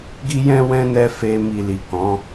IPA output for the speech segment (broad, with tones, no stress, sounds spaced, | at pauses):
ɡ i˦ j ɛ̃˦ w ɛ̃˦ n ɛ˧ f e˧ m i˨ l i˨ k ɔ̃˨˦